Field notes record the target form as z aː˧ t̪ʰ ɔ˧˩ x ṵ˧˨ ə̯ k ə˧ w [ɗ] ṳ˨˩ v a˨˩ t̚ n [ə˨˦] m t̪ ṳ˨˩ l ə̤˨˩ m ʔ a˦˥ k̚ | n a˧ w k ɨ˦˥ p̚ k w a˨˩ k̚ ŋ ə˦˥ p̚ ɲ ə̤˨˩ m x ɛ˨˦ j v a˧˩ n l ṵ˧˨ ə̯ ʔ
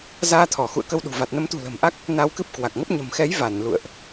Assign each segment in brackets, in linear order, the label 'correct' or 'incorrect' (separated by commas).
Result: correct, correct